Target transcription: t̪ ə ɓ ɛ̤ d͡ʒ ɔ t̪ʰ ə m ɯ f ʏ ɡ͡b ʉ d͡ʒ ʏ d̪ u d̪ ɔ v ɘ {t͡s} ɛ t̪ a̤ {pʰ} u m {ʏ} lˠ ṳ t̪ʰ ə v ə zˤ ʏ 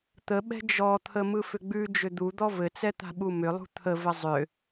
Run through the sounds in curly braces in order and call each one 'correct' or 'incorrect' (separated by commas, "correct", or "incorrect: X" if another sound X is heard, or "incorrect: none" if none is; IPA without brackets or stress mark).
correct, incorrect: ɓ, correct